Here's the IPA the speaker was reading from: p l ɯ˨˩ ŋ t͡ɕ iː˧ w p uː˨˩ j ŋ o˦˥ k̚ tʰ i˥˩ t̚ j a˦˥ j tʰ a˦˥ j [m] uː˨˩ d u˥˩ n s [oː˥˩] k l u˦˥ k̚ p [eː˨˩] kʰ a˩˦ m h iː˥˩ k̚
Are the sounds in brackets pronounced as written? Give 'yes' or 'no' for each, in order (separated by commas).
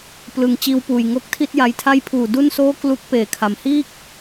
no, yes, yes